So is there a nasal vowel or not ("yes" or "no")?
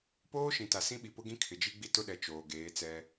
yes